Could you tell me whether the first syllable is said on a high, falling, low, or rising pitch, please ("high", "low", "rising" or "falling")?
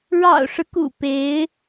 low